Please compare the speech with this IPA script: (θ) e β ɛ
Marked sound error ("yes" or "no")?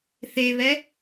no